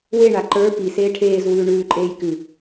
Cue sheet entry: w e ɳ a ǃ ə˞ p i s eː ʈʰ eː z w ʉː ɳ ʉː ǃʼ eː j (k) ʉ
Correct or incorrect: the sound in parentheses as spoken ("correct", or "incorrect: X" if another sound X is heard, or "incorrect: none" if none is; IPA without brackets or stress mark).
correct